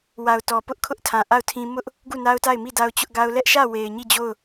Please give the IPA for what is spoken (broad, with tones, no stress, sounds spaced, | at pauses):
w a˨ ʊ̯ t ɔ˨ p ʊ˦ ʔ kʰ ʊ˦ ʔ tʰ ã˨ ʔ a˦˨ ʊ̯ tʰ ĩ˦ m ʊ˦ ʔ | ɡ u˦˨ n a˦ ʊ̯ t a˦˨ ɪ̯ m i˦˨ d a˦ ʊ̯ t͡ɕ ʊ˦ ʔ ɡ a˦ ʊ̯ l ɛ˦ ʔ ʃ ä˦˨ w e˨ ɪ̯ ɲ i˦˨ d͡ʑ o˦˨ ʊ̯